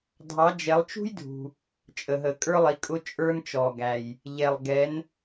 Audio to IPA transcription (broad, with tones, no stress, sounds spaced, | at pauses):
dʱ ɑ˨˦ d͡ʒ ɛ˨˦ lˠ t͡ʃ ṳ˥ j dʱ ṳ˨ | t͡ʃʼ ə˨ ɦ ə˨ kʼ ə˞˥ lˠ i˨˦ kʼ ʊ˥ t͡ʃʼ ə˞˥ n t͡ʃ ɔ˨ ɡ æ˨ j | ʎ ɛ˨ lˠ ɡ ɛ˨˦ n